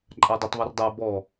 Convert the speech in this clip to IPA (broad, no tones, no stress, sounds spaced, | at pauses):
ǃʼ a dˤ ɛ tˤ β ɤ r dˤ a b ɔ